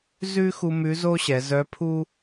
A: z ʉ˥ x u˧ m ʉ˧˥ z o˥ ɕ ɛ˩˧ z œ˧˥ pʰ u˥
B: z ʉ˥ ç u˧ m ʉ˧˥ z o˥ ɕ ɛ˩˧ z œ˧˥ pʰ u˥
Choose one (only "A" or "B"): A